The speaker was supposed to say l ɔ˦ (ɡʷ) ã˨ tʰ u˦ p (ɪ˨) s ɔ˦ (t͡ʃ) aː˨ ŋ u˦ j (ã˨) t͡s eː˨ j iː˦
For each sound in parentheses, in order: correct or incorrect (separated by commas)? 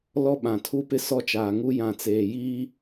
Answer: incorrect, incorrect, correct, correct